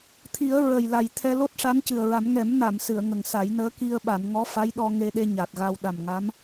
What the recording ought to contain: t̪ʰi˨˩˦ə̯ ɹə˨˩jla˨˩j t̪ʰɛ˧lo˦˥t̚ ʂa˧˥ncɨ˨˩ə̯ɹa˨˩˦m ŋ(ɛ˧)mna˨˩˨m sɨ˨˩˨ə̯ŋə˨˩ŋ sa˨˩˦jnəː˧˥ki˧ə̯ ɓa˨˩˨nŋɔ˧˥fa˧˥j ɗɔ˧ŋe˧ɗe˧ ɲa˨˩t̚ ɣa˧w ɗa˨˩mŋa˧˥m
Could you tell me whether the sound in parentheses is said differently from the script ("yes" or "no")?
yes